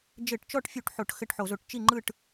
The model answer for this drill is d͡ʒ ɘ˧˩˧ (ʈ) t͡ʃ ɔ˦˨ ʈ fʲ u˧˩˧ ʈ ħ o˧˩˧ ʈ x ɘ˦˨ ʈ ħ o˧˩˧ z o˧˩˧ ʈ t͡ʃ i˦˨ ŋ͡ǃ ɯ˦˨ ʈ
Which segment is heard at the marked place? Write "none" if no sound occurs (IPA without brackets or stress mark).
ʈ